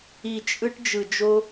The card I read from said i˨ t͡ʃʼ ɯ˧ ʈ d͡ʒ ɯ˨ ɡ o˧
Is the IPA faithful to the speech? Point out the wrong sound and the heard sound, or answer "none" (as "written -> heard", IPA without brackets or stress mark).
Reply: ɡ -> d͡ʒ